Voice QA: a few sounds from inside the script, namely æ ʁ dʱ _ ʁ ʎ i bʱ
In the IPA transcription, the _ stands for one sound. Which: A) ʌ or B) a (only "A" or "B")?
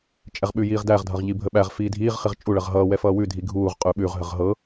A